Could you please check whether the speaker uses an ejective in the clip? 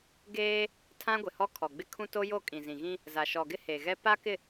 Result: yes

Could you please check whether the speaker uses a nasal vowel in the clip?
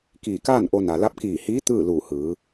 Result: no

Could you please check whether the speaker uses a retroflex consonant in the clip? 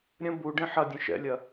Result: yes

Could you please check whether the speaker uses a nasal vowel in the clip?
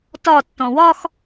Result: yes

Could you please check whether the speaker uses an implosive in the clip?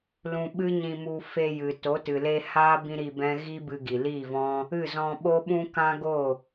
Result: yes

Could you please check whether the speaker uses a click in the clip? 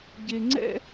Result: yes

